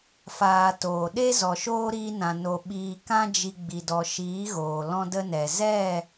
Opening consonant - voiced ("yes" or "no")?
no